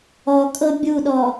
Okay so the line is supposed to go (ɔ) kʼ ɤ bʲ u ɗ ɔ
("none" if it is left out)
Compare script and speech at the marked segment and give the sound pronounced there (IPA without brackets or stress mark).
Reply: ɔ